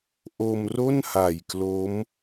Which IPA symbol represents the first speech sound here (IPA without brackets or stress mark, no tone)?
ʔ